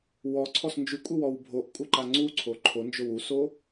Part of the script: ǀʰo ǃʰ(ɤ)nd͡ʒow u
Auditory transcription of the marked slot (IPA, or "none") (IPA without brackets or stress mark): o